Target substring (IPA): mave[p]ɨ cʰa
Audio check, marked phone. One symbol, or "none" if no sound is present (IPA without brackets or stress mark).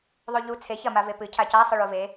p